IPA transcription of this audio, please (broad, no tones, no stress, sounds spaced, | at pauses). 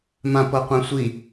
m ã p ɤ qʷ ã sʷ i